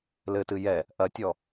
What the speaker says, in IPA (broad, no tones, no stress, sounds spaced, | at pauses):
l ɘ t ɨ j ɛ | ʔ ɐ tʲ ɔ